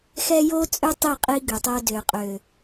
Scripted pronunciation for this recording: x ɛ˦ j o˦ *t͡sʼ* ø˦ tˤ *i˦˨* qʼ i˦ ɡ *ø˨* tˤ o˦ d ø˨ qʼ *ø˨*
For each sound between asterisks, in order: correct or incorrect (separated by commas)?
correct, correct, correct, correct